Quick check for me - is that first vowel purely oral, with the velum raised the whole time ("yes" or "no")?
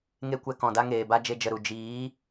yes